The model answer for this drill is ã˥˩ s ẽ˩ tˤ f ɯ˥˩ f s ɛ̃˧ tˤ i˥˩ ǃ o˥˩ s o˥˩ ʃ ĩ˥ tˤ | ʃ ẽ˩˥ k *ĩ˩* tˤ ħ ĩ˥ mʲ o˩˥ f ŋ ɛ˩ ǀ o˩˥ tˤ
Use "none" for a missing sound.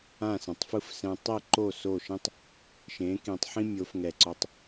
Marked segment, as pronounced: ĩ˩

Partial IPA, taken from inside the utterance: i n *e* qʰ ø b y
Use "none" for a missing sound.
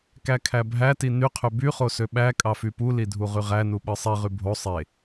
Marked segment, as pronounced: y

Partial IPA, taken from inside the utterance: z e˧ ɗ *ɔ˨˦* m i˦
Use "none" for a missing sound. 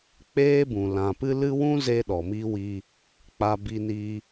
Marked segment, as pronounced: ɔ˨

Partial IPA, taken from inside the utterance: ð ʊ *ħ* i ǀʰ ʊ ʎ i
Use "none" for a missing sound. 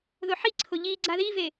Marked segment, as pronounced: ħ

